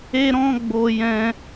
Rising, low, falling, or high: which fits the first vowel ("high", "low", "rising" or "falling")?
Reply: high